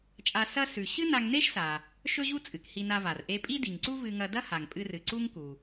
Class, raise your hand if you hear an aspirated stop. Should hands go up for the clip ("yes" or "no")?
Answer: no